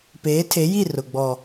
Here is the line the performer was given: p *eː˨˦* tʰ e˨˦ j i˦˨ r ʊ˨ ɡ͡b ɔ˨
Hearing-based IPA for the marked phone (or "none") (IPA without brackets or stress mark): eː˨˦